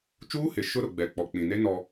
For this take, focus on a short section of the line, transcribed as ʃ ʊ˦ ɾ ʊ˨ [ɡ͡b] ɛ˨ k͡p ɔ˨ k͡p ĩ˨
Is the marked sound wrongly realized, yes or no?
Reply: no